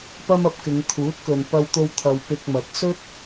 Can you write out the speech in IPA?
pɐ˥mɐ˧p̚kɪ˨˧ŋ t̪ʰuː˨˥t̚kɵ˨n pɐ˥wt̪o˥w t̪ʰɐ˧wpɪ˧k̚mɐ˨˥t̚ sɵ˥t̚

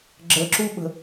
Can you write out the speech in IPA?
ɡ͡ǁəǁuɓə̤

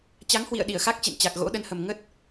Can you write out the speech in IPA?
t͡ɕa˨˦ŋhwḭ˧˨ə̯ ɗi˧˩ə̯xa˦˥k̚t͡ɕḛ˧˨n t͡ɕa˨˩k̚ɣo̰˧˥ɗə˧nhə˨˩m ŋə˦˥t̚

